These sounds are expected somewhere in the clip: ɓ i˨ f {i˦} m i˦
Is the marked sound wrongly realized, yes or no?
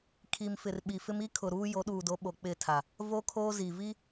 yes